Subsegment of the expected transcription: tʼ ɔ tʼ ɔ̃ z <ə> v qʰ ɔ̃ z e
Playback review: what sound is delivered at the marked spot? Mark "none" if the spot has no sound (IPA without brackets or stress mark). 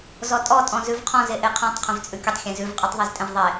ʉ